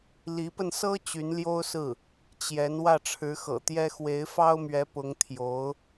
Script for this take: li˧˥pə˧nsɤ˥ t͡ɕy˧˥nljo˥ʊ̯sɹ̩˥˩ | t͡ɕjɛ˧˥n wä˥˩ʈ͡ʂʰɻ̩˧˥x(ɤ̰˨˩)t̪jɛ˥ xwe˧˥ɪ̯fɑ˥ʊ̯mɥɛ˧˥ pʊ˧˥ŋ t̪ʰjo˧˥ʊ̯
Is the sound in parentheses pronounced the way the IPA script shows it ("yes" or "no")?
yes